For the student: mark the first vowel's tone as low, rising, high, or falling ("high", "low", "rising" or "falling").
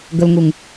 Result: low